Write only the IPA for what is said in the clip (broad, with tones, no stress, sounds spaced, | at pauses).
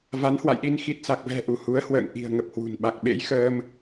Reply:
v a˨˦ n h w a̰˧˨ j ɗ i˧ n x i˨˩ t̚ s a˨˩ k̚ v ɛ̤˨˩ ʔ u˧˩ h u˨˦ ə̯ h w ə̰ː˧˨ ŋ ʔ i̤˨˩ ə̯ ŋ ə˨˩ p̚ h w ṳ˨˩ n ɓ a˨˩ k̚ ɓ ḛ˧˥ j x əː˧ m